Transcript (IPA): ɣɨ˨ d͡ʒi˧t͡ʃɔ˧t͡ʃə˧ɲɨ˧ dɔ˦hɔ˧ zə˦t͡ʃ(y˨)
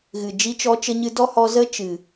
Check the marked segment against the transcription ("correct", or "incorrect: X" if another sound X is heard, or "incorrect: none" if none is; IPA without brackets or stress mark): incorrect: ɨ˨